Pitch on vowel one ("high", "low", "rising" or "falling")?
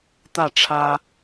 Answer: falling